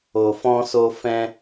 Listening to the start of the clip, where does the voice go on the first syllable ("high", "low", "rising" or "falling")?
low